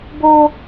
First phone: b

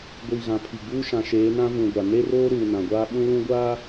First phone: ɡʷ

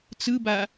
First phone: t͡s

